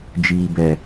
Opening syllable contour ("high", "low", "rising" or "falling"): low